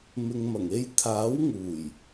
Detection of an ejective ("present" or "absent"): absent